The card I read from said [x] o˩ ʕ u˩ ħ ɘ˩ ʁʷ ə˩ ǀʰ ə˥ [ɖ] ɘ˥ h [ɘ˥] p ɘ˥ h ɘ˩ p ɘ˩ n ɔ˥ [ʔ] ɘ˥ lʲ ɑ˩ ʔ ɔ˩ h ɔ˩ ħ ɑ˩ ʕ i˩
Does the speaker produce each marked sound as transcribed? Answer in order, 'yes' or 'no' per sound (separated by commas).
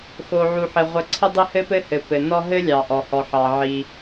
yes, no, yes, no